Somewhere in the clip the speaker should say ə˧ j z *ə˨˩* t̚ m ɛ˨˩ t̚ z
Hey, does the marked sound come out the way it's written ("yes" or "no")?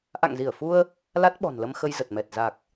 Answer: yes